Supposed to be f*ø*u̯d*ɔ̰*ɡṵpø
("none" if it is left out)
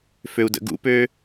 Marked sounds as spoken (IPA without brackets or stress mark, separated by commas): ø, ə̰